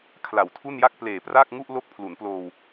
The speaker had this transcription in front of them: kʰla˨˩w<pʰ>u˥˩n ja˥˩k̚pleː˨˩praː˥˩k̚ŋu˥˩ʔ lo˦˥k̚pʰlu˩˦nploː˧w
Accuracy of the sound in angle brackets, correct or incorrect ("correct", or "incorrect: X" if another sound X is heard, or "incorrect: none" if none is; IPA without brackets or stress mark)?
incorrect: tʰ